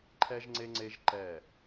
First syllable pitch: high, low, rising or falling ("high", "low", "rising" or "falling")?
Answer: high